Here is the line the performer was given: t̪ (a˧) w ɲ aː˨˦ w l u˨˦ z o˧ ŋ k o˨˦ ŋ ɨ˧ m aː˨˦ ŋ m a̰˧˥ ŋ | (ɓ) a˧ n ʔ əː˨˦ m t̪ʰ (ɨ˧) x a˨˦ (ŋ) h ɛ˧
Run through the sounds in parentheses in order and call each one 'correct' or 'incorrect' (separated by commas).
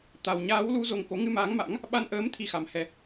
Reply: correct, correct, incorrect, incorrect